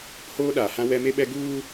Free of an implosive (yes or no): no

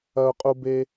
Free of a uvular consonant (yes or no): no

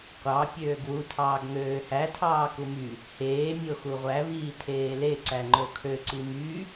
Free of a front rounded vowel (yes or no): no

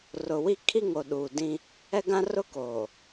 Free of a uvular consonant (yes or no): yes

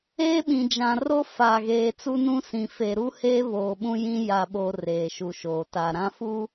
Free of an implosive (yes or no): no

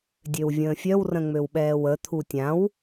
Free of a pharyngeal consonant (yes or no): yes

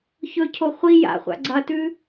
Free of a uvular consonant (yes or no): no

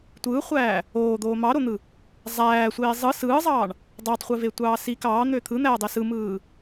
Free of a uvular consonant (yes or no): no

